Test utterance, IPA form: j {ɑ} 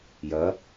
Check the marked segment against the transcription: incorrect: ɐ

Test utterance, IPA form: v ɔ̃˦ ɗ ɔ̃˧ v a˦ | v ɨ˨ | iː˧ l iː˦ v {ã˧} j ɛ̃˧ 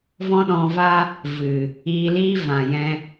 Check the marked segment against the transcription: incorrect: ã˨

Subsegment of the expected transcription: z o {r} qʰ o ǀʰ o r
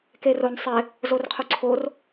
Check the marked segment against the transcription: correct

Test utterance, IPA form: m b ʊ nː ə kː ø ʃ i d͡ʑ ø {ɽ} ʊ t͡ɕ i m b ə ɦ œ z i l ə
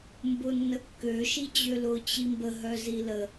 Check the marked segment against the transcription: incorrect: l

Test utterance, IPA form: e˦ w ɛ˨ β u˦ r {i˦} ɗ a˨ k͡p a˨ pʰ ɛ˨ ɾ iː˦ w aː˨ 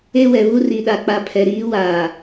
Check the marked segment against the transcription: incorrect: i˨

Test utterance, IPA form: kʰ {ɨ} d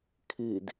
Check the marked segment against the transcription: correct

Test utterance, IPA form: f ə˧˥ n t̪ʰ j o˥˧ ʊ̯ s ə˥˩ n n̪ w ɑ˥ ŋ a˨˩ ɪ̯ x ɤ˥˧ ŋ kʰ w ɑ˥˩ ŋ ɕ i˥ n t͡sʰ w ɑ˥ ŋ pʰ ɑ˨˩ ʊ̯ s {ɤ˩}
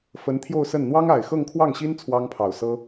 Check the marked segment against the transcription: incorrect: ɤ˥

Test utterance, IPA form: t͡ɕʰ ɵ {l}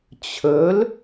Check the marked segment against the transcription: correct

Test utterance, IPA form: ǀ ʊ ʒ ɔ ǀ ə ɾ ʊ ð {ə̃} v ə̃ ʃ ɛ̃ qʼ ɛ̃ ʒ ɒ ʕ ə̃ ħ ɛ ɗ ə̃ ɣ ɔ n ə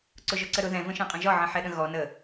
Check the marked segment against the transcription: incorrect: ɛ̃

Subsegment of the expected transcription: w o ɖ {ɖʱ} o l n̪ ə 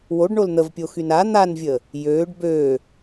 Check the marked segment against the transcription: incorrect: ɳ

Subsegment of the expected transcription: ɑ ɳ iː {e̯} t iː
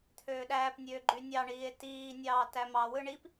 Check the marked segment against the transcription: correct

